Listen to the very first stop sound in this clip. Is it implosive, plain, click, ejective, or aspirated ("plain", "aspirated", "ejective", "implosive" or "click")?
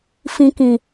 plain